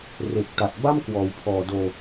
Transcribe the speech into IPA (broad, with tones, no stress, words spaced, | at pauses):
re˨˩k̚ta˨˩t̚ ba˥˩mkwɔː˩˦wpʰɔː˨˩doː˧